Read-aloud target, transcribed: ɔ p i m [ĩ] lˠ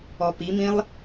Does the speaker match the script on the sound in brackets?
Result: yes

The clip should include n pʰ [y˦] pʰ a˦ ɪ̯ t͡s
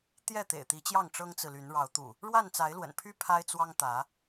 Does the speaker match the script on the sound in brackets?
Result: yes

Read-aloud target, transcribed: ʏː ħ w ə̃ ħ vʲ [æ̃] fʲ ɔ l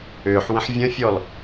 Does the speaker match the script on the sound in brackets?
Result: no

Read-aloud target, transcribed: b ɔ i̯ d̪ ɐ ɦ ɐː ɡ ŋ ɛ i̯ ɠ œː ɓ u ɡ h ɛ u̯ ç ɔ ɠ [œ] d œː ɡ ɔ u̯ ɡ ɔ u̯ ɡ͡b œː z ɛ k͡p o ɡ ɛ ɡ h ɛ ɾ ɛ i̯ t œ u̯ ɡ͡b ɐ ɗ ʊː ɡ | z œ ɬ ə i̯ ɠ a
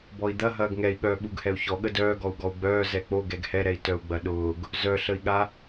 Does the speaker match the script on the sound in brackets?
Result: no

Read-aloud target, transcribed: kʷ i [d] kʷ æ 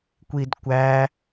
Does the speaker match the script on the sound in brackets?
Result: yes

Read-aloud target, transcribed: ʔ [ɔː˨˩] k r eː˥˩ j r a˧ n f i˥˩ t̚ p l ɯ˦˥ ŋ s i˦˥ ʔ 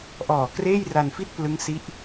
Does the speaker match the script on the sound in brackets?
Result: yes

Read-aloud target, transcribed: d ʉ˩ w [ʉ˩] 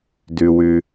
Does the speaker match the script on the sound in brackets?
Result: yes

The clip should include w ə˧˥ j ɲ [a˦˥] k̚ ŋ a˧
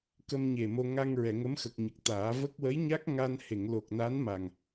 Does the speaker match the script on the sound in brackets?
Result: yes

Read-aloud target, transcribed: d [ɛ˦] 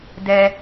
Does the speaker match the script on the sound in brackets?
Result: yes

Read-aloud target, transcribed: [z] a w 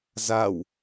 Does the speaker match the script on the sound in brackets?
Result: yes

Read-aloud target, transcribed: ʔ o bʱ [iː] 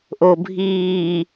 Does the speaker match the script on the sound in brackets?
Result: yes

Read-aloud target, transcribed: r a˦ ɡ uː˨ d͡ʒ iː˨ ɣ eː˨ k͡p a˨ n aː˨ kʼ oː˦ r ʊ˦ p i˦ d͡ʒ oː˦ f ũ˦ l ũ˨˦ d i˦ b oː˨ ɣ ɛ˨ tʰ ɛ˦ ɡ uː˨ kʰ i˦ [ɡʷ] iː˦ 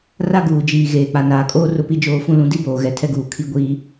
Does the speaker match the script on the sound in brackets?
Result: yes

